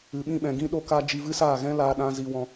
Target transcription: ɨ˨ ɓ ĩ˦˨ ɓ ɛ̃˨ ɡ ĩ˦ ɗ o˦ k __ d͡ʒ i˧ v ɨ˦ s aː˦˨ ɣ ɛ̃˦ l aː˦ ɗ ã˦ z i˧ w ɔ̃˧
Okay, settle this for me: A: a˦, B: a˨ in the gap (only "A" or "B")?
A